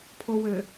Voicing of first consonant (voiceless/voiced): voiceless